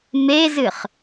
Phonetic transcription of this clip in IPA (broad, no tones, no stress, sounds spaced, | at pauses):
m e z ɨ χ